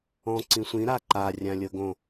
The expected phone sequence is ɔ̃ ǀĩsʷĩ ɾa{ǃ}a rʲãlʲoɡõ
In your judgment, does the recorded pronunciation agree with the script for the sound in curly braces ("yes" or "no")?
yes